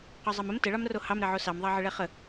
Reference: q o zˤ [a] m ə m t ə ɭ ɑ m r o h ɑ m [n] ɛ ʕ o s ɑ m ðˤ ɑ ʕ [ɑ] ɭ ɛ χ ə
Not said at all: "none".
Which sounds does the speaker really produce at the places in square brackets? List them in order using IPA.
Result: ɑ, ɾ, ə

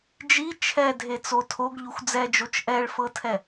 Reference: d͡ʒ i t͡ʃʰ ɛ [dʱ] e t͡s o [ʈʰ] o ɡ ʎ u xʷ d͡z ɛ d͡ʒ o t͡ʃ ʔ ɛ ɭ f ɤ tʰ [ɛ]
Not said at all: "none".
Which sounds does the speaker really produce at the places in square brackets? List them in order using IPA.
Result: dʱ, tʰ, ɛ

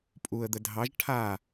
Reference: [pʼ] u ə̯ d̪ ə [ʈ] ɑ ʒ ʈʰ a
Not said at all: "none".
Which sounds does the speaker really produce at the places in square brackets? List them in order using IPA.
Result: pʼ, dʱ

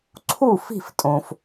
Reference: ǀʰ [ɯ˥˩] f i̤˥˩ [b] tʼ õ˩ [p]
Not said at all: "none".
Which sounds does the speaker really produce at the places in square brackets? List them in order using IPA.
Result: u˥˩, f, f

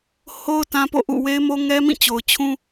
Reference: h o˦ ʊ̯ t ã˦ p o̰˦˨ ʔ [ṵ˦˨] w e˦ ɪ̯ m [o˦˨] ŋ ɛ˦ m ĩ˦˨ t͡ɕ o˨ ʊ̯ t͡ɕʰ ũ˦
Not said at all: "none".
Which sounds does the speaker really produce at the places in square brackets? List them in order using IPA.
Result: ṵ˦˨, o˦

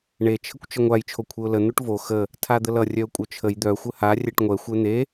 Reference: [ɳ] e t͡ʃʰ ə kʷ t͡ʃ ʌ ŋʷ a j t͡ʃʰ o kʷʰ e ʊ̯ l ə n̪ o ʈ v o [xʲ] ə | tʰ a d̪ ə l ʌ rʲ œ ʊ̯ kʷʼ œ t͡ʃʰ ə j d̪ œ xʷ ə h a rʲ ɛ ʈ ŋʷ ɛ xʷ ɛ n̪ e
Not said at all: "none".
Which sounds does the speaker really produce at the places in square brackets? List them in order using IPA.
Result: ɳ, x

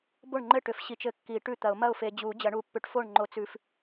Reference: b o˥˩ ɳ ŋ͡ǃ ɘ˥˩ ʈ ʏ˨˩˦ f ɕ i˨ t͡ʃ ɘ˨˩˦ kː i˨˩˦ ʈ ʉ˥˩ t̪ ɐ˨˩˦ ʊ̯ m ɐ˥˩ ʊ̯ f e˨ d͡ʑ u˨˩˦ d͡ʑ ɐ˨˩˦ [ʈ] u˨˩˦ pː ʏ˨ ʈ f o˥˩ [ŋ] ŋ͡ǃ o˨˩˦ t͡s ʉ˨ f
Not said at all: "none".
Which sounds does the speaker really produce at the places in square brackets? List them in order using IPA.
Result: ɳ, ɳ

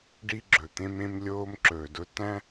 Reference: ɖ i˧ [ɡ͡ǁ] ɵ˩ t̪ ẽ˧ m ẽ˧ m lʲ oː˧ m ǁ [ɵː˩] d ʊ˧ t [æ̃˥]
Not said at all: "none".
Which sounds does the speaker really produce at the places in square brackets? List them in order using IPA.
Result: ɡ͡ǁ, ɵː˩, æ̃˥

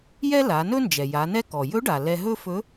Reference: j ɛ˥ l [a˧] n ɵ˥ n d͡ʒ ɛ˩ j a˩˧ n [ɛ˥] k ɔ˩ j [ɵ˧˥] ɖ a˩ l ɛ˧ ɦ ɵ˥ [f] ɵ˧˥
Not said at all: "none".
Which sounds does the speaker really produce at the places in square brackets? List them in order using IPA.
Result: a˩˧, ɛ˥, ɵ˧˥, f

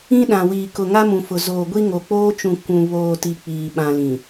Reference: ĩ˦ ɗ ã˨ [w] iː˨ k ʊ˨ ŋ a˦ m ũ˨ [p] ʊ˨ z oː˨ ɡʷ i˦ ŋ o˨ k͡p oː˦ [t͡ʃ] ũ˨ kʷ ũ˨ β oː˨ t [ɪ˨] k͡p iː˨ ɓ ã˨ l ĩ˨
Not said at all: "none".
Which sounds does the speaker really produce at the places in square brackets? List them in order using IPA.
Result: w, f, t͡ʃ, i˨

